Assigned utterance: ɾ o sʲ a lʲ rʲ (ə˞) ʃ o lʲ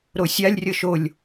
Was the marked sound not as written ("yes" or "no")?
yes